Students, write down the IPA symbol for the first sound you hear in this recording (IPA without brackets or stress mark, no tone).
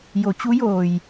j